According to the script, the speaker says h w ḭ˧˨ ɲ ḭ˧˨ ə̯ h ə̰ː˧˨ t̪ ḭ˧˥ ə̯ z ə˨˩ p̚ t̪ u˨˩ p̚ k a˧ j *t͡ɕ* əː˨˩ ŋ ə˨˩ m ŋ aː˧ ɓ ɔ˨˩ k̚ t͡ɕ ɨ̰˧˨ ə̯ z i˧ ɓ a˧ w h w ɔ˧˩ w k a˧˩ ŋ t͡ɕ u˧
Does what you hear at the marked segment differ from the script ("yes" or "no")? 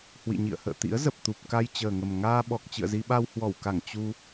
no